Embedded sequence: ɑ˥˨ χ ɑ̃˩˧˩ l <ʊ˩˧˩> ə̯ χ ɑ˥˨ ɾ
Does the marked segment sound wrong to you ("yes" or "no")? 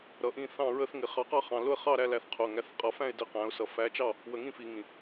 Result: yes